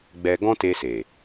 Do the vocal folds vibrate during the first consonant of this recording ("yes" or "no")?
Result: yes